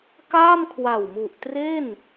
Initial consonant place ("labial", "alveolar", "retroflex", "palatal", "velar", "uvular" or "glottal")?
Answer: velar